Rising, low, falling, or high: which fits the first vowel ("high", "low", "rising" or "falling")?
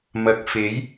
low